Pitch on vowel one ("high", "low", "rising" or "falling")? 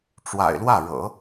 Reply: low